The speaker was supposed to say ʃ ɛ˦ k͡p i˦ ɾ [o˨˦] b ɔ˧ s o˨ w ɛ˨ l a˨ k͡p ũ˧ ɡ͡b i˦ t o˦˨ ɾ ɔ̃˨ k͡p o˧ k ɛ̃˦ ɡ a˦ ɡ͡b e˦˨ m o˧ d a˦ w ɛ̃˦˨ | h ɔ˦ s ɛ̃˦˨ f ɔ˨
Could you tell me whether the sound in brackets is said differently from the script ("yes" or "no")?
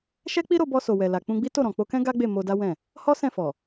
yes